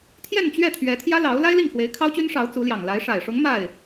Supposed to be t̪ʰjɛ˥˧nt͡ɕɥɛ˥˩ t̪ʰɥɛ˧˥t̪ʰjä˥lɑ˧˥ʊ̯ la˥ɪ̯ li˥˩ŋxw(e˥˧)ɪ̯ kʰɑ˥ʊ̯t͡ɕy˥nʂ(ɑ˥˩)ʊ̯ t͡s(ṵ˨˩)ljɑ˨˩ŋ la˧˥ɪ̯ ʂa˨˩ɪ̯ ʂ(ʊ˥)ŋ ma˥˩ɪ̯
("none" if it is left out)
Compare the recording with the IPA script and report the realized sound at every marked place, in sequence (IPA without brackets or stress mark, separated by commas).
e˧˥, ɑ˧˥, u˧˥, ʊ˧˥